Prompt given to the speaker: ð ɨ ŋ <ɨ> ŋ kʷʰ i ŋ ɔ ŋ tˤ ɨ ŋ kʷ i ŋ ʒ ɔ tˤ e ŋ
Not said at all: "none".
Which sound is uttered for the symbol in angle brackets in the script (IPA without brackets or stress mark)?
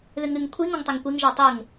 ɨ